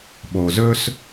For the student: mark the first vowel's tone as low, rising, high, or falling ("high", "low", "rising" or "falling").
low